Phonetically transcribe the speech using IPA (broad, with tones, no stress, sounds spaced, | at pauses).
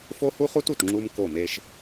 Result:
f o˦ h u˦ χ u˦ t u˨ t ŋ͡ǁ u˦ m k o˦˨ m e˦ ʃ